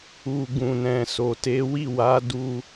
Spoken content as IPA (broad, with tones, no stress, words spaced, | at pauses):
u˨ ɡũ˨nɛ̃˨ so˨te˨˦wi˦˨ wa˨˦ du˧